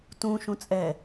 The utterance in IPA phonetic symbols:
t ũ ʃ ũ t͡sʼ ɛ

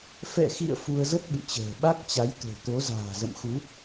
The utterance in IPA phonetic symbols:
f ɛ̰˧˨ x ḭ˧˨ ə̯ f u˧ ə̯ z ə˦˥ t̚ ɓ ɨ̰˧˨ t͡ɕ ə̤ː˨˩ ɓ a˦˥ k̚ t͡ɕ a˨˦ j t̪ o̤˨˩ t̪ o˨˦ z a̤ː˨˩ z ə̰˧˨ m x u˨˦

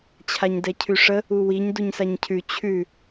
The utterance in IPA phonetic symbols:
t͡ɕʰ a ɲ d ɛ cʰ ʉ ʂ ə | u w i ɲ d u ɲ s a ɲ cʰ ʉ t͡ɕʰ ʉ

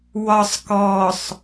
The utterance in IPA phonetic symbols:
w ɒ sˤ k ɔ sˤ

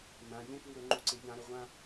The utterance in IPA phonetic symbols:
n ã ʎ ẽ k w ʉ ɾ ɵ ŋ͡ǃ u ǀ e ʎ ã ɾ ɵ ʁʷ ã

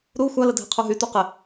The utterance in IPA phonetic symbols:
ɾ u xʷ a l ə dʱ ɪ qʰ u ɦ y t u q ɪ

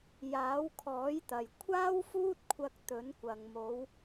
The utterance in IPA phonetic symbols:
j aː˨˥ w kʰ ɔː˨˥ j t̪ ɐ˨ j kʷʰ aː˥ w f uː˥ t̚ kʷʰ ɐ˧ k̚ t̪ ɵ˨˥ n kʷ ɐ˨ ŋ m o˨˧ w

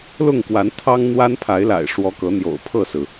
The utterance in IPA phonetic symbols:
l ʊ˥˨ ŋ k w a˨˦ n t̪ʰ ɑ˦ ŋ n̪ w a˦ n pʰ a˨˦ ɪ̯ l a̰˨˩ ɪ̯ ʂ w ɔ˨˦ k ɤ˨˦ n̪ j o̰˨˩ ʊ̯ pʰ ɤ˥˨ s ɹ̩˩

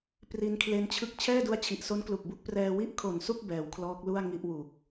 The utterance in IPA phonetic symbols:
p r i˧ n kʰ l e˦˥ n t͡ɕʰ ɯ˥˩ k̚ t͡ɕʰ ɛː˥˩ d u˦˥ a̯ t͡ɕʰ i˨˩ ʔ s o˦˥ n k l u˨˩ k̚ b u˥˩ k̚ p r ɛː˧ w i˥˩ ʔ kʰ o˨˩ n s u˥˩ k̚ b ɛː˩˦ w kʰ l ɔː˦˥ k̚ l u˥˩ a̯ ŋ i˥˩ ʔ w u˨˩ k̚

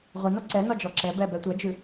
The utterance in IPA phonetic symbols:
ʁʷ i n ɒ ǀ ɛ n ɒ d͡ʒ ɔ ǁ ɛ b ɛ b ɛ tʷ ɐ d͡ʒ ʉ

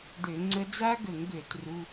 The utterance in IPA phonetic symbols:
ɖ ø˧˩˧ ŋ͡ǀ ə˦˥ d͡z a˦˥ ɡ ə˧˩˧ ŋ ɡ ø˧˩˧ t r u˧˥˧

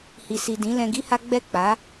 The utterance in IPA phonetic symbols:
h i˨ s i˨ d ĩ˨˦ l ɛ̃˧ ɡ i˦ h a˦ ɡ͡b ɛ˦˨ k͡p a˨˦

